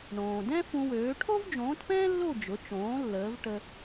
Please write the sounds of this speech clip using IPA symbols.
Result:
ɳõː˩dɛ̃˥fũ˧wøː˩˥ ʈʰo˥vd͡ʒõː˩˥tpɛ̃ː˥lːo˥˩ d͡ʒʊ˩˥t͡ʃõː˩˥ lːəː˩˥vʈə˧

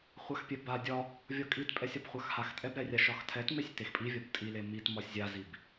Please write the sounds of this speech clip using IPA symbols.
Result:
χʷaxpʲɛba dʲɒ | vʲɒkʼit pʼɛsʲɒbχʷaxhax tʼɛbɾɛrʲa ʃɒxtʰɛtmesʲ texpʼi vʲɒbtʼile mit mɒsʲzʲazib

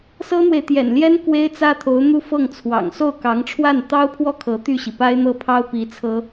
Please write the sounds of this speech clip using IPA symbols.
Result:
sɤ˥n̪we˨ɪ̯t̪jɛ̰˨˩nljɛ˥n kwe˥ɪ̯t͡sä˥t̪ʰo˧˥ʊ̯ n̪u˥˧fɤ˥˩ŋt͡sʰwɑ̰˨˩ŋ so˥˩ʊ̯kɑ˧˥ŋʈ͡ʂʰwa˥˩n t̪ɑ˥ʊ̯pʰwɔ˥˩ kʰɤ˧˥t̪y˥˩ɕi˩ pa˥ɪ̯n̪ɤ˥pʰɑ˥ʊ̯ pi˧˥t͡sʰɤ˥

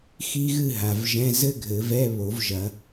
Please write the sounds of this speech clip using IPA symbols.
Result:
xi˥ɣɨ˥˧ɦa˨vʒɛ̃˧˥˧ zɘ˥ɡʱɘ˨˩˦vɛ˧˥˧ βo˨˩˦vʒɐ˨˩˦

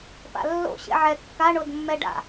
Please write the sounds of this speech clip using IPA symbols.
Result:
pa̰lːo̰ ɕḛʕɛ kːa ɳodmːɛɖa̰

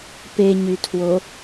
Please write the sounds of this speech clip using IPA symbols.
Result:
peɲytʰwo

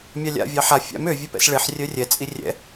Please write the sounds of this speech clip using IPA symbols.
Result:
mʲɑlʲa̰ vʲɑħa fʲa̰m ø vʲɛpɛ̰sɭeħ rʲœrʲɛ t͡sʼirʲɛ̰

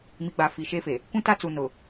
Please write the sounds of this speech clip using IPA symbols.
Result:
mi˨ɡ͡ba˨ fi˨ʃe˦fe˨ | kʷũ˦ta˦t͡su˨ nʊ˨

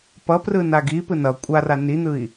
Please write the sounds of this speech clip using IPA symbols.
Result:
pʌprɯnaɡ ipɯ nʌ kʷʼara nin̪ɯi̯

